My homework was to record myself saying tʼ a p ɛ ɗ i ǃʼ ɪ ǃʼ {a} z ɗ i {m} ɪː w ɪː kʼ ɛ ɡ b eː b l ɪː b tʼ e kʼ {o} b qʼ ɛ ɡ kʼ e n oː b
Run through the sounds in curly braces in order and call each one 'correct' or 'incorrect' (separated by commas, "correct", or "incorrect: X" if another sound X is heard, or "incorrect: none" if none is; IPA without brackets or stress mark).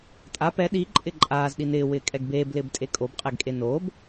incorrect: aː, incorrect: n, correct